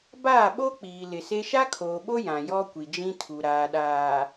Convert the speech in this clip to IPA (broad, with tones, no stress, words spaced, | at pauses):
baː˦˨ɓo˦k͡piː˨ lɪ˨se˦ ʃa˦kʰoː˨ɓo˦ jã˨jɔ˦ kʷi˨d͡ʒĩ˦tʰu˨ ɾaː˨ɗaː˨